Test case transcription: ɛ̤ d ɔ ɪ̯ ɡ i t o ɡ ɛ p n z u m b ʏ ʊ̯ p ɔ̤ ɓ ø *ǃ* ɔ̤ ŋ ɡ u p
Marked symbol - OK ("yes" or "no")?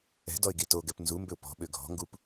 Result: no